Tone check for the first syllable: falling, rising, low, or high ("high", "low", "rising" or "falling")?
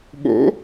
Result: rising